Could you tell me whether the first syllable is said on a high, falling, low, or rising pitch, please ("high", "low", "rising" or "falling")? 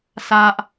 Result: high